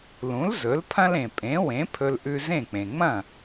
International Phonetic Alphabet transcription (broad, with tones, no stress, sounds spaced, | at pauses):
l ũ˩˥ l z ɵ˩˥ l pʰ ɐ̃˥ l ẽ˩ pʼ ẽ˩˥ w ẽ˩˥ pʰ ɵ˧ l ʔ ʉ˧ z ẽ˥˩ k͡p ẽ˩ ŋ͡m ɐ̃˥˩